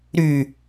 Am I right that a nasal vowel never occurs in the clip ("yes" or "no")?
yes